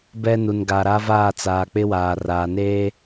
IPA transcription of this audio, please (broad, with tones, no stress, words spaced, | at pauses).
bɛ˦nu˨n ɡa˨ɾa˦vaː˦˨ t͡saː˨k͡pɪ˦waː˨ raː˨neː˦